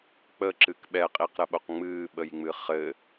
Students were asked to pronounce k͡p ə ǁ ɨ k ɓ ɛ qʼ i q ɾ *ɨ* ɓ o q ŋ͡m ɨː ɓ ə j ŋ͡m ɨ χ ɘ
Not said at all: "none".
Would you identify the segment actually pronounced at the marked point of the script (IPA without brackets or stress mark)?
ə